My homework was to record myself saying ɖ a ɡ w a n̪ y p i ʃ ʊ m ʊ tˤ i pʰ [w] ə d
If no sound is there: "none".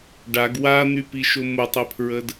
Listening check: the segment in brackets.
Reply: ɹ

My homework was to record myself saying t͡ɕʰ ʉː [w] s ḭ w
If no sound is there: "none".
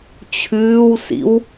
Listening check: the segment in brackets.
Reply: w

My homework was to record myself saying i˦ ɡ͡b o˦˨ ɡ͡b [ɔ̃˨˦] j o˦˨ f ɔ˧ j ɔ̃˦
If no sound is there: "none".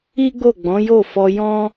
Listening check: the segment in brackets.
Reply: ɔ̃˨˦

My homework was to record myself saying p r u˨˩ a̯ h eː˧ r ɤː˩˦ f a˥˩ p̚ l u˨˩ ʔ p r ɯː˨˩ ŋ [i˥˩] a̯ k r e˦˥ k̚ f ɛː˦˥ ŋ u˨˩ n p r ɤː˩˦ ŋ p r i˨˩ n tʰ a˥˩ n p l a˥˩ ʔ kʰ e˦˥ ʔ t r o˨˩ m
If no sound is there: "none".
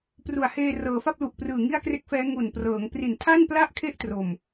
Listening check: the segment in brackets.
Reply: i˥˩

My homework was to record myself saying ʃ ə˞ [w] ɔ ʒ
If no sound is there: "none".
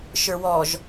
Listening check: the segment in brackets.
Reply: w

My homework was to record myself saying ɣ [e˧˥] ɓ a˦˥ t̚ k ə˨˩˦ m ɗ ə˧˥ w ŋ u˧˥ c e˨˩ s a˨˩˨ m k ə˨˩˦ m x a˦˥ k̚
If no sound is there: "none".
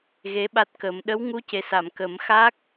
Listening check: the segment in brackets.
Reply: e˧˥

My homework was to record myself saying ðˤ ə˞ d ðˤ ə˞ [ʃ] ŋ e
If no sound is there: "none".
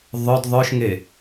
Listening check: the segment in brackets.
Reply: ʃ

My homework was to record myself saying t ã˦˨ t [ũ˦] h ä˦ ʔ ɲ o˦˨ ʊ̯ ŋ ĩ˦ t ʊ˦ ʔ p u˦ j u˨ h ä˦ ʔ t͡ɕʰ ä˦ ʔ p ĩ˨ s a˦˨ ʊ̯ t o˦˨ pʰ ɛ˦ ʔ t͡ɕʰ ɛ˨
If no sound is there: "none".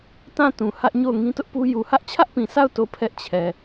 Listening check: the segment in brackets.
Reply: ũ˨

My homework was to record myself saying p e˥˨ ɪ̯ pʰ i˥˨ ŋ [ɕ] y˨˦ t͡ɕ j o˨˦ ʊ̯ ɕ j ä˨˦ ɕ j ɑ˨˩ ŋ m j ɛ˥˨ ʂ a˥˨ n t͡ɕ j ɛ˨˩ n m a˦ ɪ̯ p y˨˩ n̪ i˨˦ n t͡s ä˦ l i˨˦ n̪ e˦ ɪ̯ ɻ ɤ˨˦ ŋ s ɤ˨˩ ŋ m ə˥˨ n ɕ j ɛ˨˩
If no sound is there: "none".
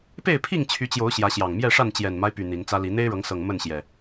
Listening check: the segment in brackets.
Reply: t͡ɕʰ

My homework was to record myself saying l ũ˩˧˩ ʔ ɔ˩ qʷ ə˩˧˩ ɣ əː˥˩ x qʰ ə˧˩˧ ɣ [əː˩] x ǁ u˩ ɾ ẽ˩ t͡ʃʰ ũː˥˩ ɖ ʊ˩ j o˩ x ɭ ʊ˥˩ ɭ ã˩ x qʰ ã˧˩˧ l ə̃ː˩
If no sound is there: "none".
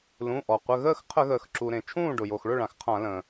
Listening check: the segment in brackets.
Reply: əː˩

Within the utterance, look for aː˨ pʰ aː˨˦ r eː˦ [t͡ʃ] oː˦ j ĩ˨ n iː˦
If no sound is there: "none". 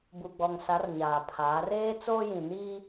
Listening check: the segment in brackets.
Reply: t͡s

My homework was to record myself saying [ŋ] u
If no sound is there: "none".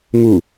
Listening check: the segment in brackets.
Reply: ŋ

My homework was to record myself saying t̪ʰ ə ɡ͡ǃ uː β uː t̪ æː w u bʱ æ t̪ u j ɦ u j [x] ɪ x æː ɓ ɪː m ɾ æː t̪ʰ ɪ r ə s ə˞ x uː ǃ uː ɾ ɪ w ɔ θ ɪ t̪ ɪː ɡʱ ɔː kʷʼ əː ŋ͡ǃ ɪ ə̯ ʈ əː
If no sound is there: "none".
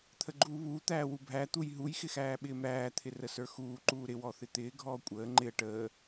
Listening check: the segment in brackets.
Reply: x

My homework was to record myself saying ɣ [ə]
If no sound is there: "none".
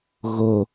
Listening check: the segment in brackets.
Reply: ə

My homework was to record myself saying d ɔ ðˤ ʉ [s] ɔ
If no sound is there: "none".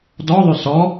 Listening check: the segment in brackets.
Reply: s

